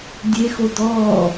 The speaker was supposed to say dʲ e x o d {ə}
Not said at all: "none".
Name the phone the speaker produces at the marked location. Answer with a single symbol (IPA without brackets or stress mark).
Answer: ɔ